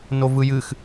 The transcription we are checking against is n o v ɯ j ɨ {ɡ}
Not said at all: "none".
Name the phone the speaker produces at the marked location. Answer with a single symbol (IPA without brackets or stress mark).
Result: x